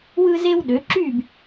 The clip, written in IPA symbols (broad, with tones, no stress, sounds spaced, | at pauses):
w ɯ˦ z e˦ w ɗ ø˩˧ ǁ yː˥˨ b